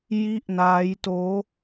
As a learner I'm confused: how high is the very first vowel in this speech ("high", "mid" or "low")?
high